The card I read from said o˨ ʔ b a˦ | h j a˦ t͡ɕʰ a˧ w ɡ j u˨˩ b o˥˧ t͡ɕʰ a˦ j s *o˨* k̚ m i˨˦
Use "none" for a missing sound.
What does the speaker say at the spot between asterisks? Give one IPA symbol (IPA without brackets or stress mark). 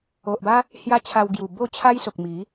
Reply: o˨